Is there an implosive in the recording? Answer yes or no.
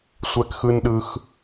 yes